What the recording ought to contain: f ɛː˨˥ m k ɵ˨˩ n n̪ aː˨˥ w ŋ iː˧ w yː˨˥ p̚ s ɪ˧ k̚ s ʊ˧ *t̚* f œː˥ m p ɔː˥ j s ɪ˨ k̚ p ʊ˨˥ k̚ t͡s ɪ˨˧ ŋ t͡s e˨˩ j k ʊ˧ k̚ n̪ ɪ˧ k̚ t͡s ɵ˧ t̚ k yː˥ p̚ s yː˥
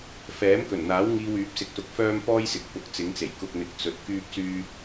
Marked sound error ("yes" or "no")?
yes